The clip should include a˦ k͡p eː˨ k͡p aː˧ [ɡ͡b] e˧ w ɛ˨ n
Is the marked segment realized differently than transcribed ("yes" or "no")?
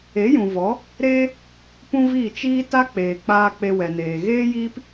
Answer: yes